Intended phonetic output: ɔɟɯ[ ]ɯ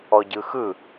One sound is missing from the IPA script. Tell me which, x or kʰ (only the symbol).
x